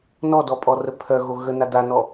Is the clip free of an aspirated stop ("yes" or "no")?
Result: no